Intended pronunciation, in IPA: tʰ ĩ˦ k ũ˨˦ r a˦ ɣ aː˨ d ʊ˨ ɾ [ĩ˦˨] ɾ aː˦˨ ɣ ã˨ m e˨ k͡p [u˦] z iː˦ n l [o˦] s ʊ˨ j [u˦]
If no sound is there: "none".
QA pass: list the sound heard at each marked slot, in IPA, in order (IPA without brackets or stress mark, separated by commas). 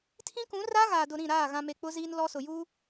ĩ˦˨, ʊ˦, ɔ˦, u˦